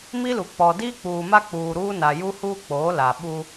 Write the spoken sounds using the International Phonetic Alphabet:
m i˦ l u˨ k͡p ɔ˨ d iː˦ k͡p uː˨ m a˦ k͡p uː˨ ɾ uː˦ n a˨ j u˦ h uː˦ k͡p oː˨˦ l a˨ ɓ u˦

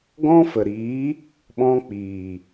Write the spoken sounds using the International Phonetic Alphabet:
ɡ ɔ̃˦ f ə˨ ɾ iː˨˦ | ɓ ɔ̃˧ k͡p iː˨

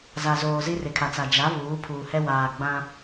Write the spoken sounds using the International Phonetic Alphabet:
z a˨ z oː˨ z i˦ r ɪ˨ kʰ a˨ t͡s a˨ d͡ʒ a˨˦ β uː˨˦ pʰ uː˨ h ɛ˦ w aː˨ ɡ͡b ã˦

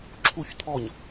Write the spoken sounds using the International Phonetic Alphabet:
ǁʰ u ç t̪ʰ ɔ ɲ

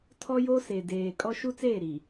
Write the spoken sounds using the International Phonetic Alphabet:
tʰ ɔ˦ j o˦ s e˨ d eː˨ kʼ ɔ˦ ʃ u˦ t͡s eː˦˨ ɾ i˨

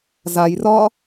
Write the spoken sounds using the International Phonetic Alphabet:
z a j r ɒ

